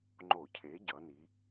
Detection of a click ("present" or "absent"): present